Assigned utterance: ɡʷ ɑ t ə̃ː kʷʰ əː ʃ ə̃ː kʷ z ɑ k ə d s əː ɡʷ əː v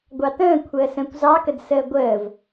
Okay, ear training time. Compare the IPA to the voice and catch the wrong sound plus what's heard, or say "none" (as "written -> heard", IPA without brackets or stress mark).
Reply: ʃ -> s